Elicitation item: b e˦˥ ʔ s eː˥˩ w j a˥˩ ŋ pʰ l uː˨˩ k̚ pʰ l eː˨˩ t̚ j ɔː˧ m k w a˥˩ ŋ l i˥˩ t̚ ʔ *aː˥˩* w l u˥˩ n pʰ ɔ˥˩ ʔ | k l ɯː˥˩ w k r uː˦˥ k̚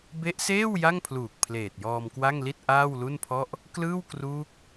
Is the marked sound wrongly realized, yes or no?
no